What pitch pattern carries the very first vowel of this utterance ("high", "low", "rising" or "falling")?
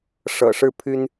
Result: low